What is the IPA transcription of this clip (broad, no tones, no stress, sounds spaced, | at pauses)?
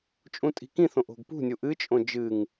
t͡ʃʼ ũ tʼ i̤ k ĩ θ õ ʔ o̤ ɡ p ṳ nʲ u ʔ ɨ t͡ʃʼ õ d͡ʒ ɨ ŋ